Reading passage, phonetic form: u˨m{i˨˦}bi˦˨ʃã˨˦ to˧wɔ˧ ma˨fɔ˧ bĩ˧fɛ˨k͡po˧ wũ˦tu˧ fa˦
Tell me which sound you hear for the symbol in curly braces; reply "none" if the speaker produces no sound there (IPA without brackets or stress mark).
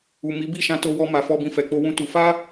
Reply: i˨˦